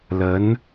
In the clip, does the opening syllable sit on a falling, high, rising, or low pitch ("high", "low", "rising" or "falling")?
rising